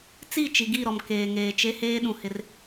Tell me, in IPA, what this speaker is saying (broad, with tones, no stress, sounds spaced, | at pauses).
t͡s i˦˨ t͡ʃ i˨ ɡ i˦˨ ɾ ɔ˨ m k eː˨ ŋ eː˨ t͡ʃ e˦ h eː˦ ɗ ũ˨ h ɪ˦ r